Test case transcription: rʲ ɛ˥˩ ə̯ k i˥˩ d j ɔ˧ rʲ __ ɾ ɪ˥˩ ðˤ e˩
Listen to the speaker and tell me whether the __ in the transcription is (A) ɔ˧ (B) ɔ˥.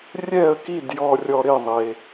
A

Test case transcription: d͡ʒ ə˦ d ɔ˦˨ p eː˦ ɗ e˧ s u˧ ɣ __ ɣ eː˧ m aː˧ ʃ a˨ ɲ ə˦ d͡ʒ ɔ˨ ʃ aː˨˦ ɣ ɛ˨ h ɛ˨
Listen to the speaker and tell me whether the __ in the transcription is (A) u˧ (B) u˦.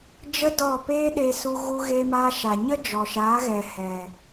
A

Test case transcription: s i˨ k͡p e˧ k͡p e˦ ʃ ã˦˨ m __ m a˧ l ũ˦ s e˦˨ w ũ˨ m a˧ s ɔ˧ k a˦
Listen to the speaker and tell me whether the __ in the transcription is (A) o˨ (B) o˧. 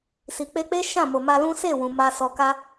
A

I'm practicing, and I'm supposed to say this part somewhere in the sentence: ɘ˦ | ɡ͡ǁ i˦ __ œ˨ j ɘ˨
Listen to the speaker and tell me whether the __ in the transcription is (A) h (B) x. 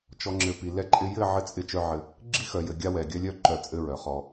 B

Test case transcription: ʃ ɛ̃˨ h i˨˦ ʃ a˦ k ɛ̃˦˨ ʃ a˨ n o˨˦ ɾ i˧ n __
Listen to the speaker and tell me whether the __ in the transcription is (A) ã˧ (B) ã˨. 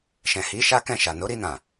B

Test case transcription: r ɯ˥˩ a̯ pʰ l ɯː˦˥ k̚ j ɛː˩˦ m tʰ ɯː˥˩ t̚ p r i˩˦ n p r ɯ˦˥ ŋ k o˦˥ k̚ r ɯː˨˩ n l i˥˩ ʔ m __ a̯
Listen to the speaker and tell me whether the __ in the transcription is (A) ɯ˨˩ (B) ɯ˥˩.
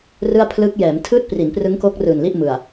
A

